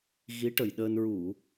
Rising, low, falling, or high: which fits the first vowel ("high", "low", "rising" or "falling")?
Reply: rising